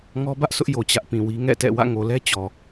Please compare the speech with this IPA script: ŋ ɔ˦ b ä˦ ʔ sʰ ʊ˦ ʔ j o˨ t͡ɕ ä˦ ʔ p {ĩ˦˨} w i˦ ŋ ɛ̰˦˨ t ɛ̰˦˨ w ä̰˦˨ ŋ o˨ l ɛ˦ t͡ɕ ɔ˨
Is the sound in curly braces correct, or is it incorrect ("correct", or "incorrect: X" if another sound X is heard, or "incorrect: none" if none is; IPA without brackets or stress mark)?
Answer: incorrect: ĩ˨